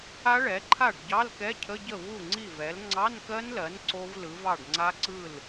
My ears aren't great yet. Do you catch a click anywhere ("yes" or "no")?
yes